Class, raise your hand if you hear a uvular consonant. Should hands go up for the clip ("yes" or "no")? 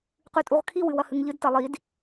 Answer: yes